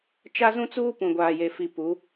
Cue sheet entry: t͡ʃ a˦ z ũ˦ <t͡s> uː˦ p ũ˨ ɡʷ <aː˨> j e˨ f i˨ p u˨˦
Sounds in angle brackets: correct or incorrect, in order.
correct, correct

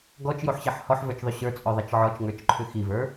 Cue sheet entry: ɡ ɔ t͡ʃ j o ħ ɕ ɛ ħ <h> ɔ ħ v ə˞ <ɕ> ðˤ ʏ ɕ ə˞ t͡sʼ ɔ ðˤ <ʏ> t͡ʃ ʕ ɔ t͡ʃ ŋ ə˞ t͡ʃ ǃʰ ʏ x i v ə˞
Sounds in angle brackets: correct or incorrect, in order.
correct, incorrect, incorrect

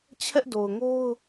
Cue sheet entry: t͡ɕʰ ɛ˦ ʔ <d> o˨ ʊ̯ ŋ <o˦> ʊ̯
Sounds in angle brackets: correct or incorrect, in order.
correct, correct

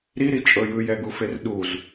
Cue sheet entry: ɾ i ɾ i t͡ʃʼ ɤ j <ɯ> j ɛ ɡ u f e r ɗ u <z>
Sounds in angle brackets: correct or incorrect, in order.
correct, correct

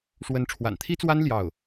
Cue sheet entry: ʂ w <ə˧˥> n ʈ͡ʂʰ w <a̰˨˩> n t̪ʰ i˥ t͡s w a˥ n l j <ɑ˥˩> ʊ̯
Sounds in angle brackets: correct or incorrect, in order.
correct, correct, correct

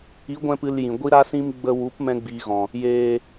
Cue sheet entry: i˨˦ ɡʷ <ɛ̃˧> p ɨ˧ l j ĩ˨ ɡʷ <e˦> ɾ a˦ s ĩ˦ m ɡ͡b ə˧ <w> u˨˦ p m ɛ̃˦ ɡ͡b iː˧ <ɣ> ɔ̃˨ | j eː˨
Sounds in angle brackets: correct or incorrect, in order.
correct, incorrect, correct, correct

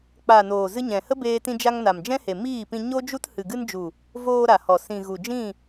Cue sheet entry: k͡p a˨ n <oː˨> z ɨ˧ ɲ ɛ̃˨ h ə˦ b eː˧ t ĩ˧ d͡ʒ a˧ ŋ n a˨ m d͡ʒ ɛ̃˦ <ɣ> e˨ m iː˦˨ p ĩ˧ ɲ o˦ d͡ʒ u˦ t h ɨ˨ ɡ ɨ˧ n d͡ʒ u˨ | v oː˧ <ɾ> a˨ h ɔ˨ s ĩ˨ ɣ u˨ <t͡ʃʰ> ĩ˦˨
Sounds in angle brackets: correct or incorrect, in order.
correct, incorrect, correct, incorrect

